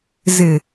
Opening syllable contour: low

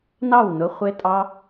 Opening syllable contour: falling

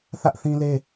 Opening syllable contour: high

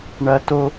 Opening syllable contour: high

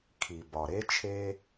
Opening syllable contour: low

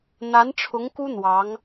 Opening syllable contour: rising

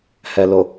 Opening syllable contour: low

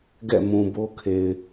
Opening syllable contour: falling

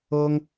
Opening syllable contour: high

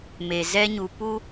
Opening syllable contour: low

